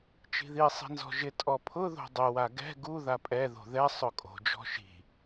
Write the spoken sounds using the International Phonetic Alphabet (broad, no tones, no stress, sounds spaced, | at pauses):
t͡ʃ i̤ ð i sˤ i̤ n z ɔ̤ ʒ ɪ tʼ ɔ pʰ ʊ ð o̤ dˤ ɪ w a ɡ ɛ̤ ɡ u ð a pʼ ɛ ð o̤ ð ɛ sˤ ʊ kʼ o̤ d͡ʒ ɔ̤ ʃ i̤